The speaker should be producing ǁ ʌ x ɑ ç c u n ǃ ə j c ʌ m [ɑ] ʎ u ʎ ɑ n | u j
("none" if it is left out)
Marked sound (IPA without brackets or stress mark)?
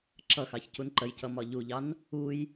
ɒ